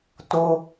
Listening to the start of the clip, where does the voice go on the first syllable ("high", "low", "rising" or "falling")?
high